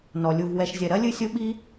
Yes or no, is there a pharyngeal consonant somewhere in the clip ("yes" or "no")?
no